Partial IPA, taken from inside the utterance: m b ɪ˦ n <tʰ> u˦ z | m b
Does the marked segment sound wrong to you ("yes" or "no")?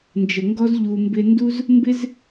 yes